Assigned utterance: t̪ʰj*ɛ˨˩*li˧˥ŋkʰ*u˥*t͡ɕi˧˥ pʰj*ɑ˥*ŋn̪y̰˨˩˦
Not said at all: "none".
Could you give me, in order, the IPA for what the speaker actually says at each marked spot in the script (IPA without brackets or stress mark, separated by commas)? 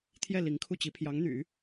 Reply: ɛ˥˩, u˥˩, ɑ˧˥